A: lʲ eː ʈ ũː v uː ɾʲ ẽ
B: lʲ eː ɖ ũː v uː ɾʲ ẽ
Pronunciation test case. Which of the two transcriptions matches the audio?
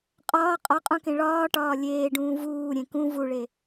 B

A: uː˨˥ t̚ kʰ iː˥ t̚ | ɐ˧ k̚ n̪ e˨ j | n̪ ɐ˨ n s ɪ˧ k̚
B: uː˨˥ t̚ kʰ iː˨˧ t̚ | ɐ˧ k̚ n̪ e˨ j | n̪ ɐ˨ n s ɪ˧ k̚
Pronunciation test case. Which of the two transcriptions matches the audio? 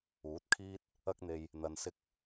A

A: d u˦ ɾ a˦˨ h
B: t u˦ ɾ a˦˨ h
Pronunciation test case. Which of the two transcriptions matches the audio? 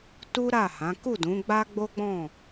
B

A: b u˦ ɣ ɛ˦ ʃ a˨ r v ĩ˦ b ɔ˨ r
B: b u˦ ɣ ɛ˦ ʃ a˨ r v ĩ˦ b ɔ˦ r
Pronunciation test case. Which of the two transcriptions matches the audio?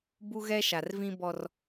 B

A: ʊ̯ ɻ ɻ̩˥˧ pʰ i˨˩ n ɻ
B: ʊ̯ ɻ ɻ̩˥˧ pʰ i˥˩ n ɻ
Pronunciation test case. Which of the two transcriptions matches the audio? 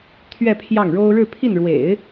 B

